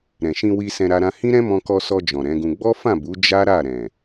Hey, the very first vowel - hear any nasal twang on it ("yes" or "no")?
yes